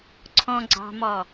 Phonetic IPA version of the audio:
ǀʰ ɔ̃ ɡ͡ǀ ɑ̤ m ɔ

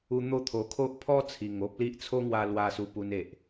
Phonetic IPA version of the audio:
u˧ n̪ o˥˧ t̪ʰ o˨˩ kʰ o˦ ʔ pʰ ɔ˦ t͡sʰ i˨˩ ŋ o˦ p̚ l i˦ ʔ t͡sʰ o˦ ŋ w a˧ l w a˧ s u˧ p u˧ n e˨ ʔ

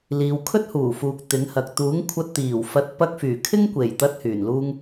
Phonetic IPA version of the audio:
l iː˨ w kʰ ɵ˥ t̚ h uː˨˩ f uː˨ k̚ t̪ ɪ˨˥ ŋ h ɐ˨ k̚ t̪ uː˨˥ ŋ kʷʰ ɐ˧ t̚ t̪ iː˨˩ w f ɐ˨˥ t̚ p ɐ˧ k̚ f yː˨˩ kʰ ɪ˥ ŋ kʷ e˨˩ j t̪ ɐ˧ t̚ h yː˨˩ n l uː˥ ŋ

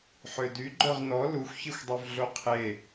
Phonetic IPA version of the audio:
ħ ø d y ɡ͡ǃ œ ʁ n ɔ l u xʷ ç i xʷ dˤ ø v ɮ o qʰ e

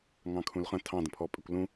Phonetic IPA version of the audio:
ŋ ɑ̃ kʰ ũ l χ ə̃ tʰ ɑ̃ d ə̃ pʰ ɔ pʼ ɪ kʷ l ũ

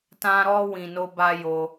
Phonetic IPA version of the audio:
t ã˦ ɾ ɔ˦ w ĩ˧ n o˦ b a˦ j o˧

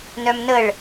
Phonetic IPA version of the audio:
n œ m n ə ɭ

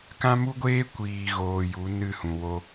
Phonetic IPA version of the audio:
k ã˦ m u˦ ɡʷ eː˦ kʷ iː˨ ɣ oː˨ j u˨˦ n ɨ˦˨ h ũ˨ w o˧

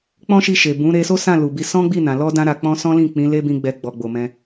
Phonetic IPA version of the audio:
k͡p ɔ̃˦ ʃ i˧ ʃ e˨ b ũ˨˦ ɾ e˧ s o˦ s ã˦˨ l u˨ b i˧ s ɔ̃˦ ɡ͡b i˦˨ n ã˨ l ɔ˧ d ã˧ ɾ a˨ k͡p ɔ̃˧ s ɔ̃˦ l ĩ˦˨ k͡p ĩ˨˦ l e˦ b ĩ˧ ɡ͡b ɛ˧ ɡ͡b ɔ˨ ɡ͡b o˨ m ɛ̃˧

